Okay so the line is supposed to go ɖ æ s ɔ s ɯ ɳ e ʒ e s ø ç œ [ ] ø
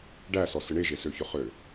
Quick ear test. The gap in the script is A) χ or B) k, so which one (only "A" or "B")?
A